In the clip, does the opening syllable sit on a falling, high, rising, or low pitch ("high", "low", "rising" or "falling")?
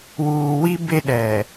low